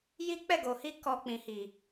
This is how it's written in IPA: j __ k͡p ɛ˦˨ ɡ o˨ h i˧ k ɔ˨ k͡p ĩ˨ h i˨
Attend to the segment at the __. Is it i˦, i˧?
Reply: i˦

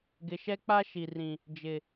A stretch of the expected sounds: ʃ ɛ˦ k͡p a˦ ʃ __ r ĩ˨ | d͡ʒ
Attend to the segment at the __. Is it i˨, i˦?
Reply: i˨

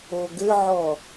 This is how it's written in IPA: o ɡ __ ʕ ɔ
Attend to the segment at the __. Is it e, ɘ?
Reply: ɘ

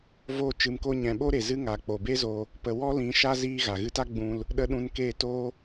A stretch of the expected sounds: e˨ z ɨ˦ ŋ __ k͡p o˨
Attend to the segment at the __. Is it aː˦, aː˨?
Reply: aː˨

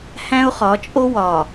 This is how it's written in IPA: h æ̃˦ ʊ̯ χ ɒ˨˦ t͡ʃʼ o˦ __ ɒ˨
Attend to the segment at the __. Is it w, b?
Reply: w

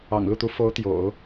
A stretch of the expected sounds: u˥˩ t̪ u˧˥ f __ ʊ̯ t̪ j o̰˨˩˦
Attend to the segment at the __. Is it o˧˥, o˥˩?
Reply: o˧˥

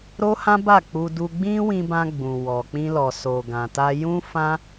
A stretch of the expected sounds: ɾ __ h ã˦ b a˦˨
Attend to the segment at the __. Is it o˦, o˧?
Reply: o˦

